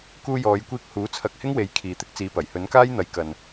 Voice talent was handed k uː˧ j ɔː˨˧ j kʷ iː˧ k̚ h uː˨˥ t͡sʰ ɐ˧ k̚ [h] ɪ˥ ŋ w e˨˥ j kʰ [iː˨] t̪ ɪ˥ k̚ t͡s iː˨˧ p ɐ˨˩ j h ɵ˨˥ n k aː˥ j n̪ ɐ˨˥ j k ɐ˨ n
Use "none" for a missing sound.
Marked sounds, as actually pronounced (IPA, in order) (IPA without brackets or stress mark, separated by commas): h, iː˨